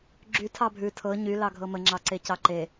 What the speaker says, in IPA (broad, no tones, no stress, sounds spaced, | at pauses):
ɡ͡ǁ y tʰ ɑ bʱ ʉ tʰ ɤ ɲ y l ɑ ɡʱ ɤ m ə ŋ͡ǁ ɑ ǀ e c ɑ ǃ e